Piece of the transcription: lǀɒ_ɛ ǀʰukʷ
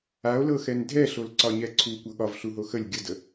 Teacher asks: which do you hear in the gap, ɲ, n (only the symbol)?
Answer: ɲ